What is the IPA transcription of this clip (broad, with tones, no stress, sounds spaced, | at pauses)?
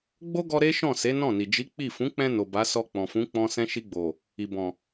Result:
ɡ͡b o˦ ɡ ɔ˧ ɾ e˦ ʃ ɔ̃˦˨ s e˨˦ n ɔ̃˦˨ n i˨ d͡ʒ i˨˦ k͡p i˦˨ f ũ˨˦ k͡p ɛ̃˧ n o˨ b a˨˦ s ɔ˧ k͡p ɔ̃˨ f ũ˨˦ k͡p ɔ̃˦ s ɛ̃˦ ʃ i˧ ɡ͡b o˨ | i˨ b ɔ̃˨